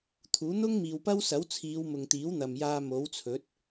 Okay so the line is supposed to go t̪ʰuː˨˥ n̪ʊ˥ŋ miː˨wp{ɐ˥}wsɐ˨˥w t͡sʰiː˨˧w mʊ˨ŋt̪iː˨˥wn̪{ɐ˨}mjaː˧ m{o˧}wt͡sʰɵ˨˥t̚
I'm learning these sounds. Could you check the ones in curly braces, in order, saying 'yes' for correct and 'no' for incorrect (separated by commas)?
yes, yes, no